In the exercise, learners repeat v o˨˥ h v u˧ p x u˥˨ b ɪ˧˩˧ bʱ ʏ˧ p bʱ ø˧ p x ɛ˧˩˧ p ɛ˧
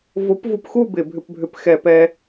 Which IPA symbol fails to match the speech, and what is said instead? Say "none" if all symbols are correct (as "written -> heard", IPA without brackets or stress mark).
h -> p